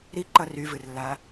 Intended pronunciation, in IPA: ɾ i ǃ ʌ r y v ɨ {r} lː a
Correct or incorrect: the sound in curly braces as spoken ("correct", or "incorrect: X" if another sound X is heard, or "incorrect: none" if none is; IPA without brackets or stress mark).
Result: correct